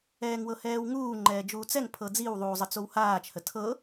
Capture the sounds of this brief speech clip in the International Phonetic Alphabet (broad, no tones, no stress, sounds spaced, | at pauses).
ɛː ŋ w ɤ h ɛː w ŋ uː ŋ͡ǃ ɛː d͡ʒ uː t͡s ɛ ŋ pʰ ɤ d͡z i w ðˤ uː zˤ ə t͡s o w h aː t͡ʃ h ə tʰ ɤ